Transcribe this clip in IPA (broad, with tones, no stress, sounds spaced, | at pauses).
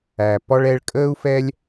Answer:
æ˨ p ɔ˦ ɭ ɛ˧ ɭ kʼ əː˦ u̯ f ɛ˦ lʲ